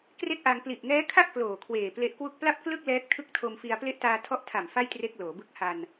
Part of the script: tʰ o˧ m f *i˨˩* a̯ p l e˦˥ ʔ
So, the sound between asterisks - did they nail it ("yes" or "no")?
no